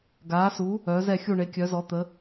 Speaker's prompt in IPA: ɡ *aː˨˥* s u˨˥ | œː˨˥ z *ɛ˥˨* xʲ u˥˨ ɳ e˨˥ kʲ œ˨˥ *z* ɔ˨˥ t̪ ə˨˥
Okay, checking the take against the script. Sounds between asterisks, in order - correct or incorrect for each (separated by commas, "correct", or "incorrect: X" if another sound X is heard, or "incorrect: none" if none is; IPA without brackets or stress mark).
correct, correct, correct